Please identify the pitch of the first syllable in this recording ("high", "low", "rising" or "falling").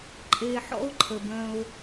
low